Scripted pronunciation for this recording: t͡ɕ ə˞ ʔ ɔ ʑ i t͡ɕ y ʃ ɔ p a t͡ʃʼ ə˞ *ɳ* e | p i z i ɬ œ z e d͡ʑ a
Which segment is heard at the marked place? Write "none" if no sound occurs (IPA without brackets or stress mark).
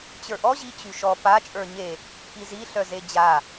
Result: ɲ